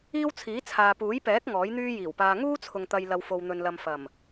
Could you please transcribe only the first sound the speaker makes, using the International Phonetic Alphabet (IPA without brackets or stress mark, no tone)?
iː